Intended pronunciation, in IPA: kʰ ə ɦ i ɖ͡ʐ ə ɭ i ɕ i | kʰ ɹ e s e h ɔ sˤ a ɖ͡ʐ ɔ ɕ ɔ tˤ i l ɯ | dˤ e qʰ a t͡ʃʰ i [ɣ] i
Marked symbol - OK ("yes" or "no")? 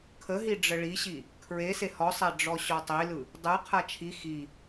no